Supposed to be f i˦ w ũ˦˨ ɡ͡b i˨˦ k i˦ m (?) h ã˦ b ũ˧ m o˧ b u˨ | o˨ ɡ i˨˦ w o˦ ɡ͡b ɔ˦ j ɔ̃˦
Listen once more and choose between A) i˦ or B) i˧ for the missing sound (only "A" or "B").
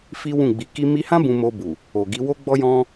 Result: B